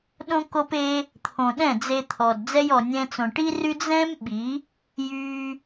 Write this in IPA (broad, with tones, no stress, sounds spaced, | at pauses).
ɗ õ˦ k o˦ p e˦ | t̪ʰ õ˨ ɗ ɛ̃˦˨ d͡z e˧ t̪ʰ ɔ˨ d d͡z ɛ˧ j ɔ˨ nʲ ɛ̃˧ t͡s õ˨ ʈ i˦ r y˦ d͡z ɛ̃˦ m ɓ i˨˦ | j y˧